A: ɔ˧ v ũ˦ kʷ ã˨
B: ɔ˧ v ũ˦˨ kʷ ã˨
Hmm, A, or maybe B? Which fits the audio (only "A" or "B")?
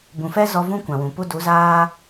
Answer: A